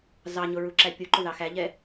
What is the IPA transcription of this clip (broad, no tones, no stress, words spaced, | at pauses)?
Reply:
zɑɲʊ ɹuǁæpʲuǃʊ ðɑxæʎɛ